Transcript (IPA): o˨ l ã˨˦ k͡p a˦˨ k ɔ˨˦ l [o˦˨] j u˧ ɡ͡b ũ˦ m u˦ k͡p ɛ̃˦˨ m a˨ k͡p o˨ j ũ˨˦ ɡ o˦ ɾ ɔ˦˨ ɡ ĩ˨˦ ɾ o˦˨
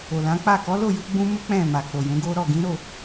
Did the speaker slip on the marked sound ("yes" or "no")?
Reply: no